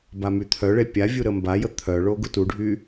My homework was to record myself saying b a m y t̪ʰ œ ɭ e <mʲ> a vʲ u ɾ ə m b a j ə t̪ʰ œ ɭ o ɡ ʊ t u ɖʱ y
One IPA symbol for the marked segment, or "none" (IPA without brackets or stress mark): pʲ